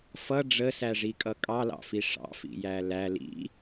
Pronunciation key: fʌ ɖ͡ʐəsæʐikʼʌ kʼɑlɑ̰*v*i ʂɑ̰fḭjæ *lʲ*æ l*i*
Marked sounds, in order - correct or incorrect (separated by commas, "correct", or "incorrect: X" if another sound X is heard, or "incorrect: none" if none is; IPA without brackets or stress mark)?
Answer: incorrect: f, incorrect: l, incorrect: ḭ